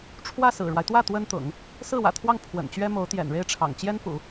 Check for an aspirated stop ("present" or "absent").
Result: present